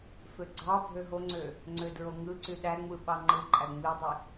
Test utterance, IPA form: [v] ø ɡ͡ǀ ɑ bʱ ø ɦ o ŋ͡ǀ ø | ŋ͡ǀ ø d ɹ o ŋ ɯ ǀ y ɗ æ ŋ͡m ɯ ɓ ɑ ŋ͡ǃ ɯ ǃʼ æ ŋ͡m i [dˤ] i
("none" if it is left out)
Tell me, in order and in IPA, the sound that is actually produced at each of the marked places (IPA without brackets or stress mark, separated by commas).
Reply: f, dˤ